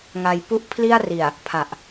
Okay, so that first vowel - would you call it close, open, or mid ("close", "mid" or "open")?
open